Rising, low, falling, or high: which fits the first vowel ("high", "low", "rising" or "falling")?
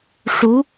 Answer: rising